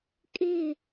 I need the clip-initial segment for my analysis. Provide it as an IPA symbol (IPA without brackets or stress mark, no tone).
kʼ